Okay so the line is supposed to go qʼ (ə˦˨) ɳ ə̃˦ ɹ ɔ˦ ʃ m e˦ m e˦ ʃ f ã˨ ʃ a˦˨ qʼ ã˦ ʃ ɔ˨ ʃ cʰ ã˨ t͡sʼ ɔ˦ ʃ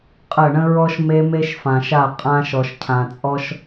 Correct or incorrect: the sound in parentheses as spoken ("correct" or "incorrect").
correct